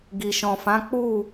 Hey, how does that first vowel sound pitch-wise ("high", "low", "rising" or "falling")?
low